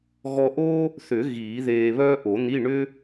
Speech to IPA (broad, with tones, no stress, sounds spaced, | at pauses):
ɣ ɔ˧ ʔ o˥ | θ ʏ˨˩˦ ɣ iː˨˩˦ ð eː˧ β œː˥ ʔ o˨˩˦ n̪ i˧˥˧ ɳ ʏ˥